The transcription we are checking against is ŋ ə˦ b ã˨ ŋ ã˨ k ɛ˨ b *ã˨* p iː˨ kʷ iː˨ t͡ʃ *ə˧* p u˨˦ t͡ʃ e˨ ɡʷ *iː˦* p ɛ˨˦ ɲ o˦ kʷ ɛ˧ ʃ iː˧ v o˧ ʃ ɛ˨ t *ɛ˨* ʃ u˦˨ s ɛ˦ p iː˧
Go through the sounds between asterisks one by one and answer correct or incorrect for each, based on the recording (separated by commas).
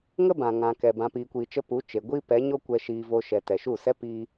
correct, correct, correct, correct